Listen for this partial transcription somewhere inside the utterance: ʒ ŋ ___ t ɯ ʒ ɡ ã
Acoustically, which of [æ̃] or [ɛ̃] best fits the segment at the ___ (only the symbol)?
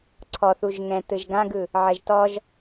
ɛ̃